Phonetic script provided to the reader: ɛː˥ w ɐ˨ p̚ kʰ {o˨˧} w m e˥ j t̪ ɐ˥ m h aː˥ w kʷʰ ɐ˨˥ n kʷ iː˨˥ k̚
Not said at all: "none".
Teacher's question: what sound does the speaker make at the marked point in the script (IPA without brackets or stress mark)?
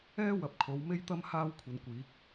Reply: o˨˧